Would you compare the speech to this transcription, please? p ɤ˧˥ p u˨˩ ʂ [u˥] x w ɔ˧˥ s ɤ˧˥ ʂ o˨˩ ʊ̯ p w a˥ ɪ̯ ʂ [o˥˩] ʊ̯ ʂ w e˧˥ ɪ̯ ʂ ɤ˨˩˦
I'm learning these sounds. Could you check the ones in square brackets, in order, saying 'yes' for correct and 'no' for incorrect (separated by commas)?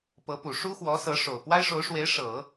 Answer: yes, no